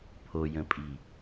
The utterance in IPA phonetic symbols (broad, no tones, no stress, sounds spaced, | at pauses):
pʰ o j ə̃ pʼ i